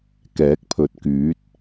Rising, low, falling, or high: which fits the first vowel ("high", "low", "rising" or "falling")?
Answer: rising